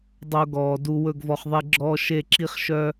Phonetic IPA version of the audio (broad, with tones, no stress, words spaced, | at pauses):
dˤo˧ɡɔː˨ du˨ wɵ˦˨ɡvɔ˧χðˤe˦ɡ͡ǁɔː˦ ʃe˦˨ǁi˦χ ʃœ˦